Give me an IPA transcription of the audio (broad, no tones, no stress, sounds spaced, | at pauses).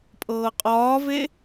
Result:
pʼ ɤː qʼ ɒː v e